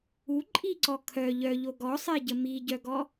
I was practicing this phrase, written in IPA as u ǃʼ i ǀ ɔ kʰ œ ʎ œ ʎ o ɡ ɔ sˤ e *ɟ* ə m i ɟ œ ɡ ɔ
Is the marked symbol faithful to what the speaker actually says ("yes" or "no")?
yes